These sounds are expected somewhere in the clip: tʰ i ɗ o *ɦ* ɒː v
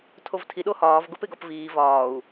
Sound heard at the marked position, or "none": h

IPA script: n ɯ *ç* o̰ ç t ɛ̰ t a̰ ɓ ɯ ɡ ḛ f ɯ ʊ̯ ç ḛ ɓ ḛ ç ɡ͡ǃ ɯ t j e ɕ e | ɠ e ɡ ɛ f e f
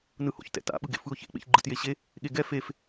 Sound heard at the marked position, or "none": h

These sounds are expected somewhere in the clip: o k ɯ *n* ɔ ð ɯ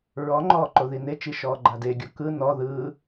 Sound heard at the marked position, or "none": n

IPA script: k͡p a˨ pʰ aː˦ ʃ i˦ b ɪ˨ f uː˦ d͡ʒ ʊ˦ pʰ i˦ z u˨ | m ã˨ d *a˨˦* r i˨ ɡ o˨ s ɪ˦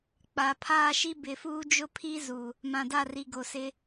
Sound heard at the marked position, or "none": a˦˨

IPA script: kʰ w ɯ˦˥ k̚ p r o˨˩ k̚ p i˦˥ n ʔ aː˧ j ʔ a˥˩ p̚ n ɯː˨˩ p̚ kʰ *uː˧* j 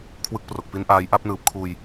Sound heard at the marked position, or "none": uː˧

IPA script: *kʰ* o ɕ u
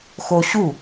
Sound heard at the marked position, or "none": x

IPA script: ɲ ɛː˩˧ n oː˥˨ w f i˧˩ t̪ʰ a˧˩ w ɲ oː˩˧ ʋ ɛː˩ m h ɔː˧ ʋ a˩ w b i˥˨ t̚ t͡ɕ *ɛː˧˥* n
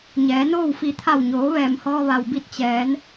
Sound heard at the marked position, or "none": ɛː˩˧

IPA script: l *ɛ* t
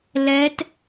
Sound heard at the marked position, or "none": ɛ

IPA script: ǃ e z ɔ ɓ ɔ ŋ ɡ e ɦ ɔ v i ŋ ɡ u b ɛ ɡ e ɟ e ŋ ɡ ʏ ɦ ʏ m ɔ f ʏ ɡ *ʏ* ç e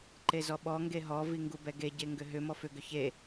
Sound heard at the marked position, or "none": ʏ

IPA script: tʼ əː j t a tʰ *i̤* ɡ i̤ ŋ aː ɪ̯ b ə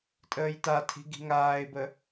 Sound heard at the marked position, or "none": i̤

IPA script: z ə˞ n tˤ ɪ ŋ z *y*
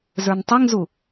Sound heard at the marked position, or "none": u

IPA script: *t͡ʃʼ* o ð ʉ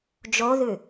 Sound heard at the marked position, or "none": d͡ʒ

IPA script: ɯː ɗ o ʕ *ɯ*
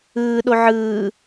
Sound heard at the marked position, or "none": ɯː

